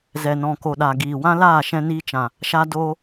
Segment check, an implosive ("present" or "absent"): present